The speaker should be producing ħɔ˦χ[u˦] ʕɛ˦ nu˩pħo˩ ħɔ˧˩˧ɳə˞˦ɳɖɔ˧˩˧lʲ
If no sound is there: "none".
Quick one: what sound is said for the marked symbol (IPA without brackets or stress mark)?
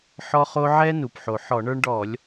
o˦